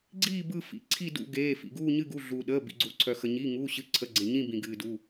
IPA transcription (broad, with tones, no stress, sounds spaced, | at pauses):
ɡ͡ǀ iː˦˨ b ɯ˦˨ f ḭ˩˧˩ ǀʰ i˦˨ d ṵ˦˨ ɡ eː˩˧˩ f ḭ˩ ɡ uː˦˨ ɲ ɨ˦˨ ɡ u˩˧˩ ɮ uː˩ ɗ əː˩˧˩ b ḭ˩ ɡ͡ǀ uː˩ ǀʰ œ˩ x ə˩ ɲ iː˩˧˩ ŋ uː˩˧˩ ɕ ɨ˩˧˩ ǀʰ ə˩˧˩ ɡ͡ǀ ẽ˩ ɲ ĩ˦˨ b ĩ˩ ɡ ɨː˩ d u˩˧˩